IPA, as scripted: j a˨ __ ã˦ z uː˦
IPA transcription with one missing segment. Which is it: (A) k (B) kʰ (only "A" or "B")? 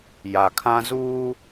B